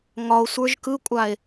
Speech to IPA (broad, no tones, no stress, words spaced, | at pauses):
ŋɒo̯sʷə˞ʒ kɯkʷʼae̯